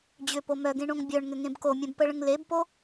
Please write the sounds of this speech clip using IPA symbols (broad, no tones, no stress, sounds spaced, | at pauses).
d͡ʑ ʏ p o m œ ɡ ẽ ɳ õ ŋ bʲ œ ɳ ŋ ʏ ŋ ẽ b k o mʲ ɛ̃ b p ə ɭ ə̃ ŋ l e b p o